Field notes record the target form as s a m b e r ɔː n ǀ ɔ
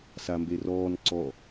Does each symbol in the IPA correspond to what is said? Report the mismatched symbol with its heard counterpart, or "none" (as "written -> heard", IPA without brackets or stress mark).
none